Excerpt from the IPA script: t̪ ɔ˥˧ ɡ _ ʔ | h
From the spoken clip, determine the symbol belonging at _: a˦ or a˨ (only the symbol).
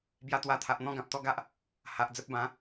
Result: a˦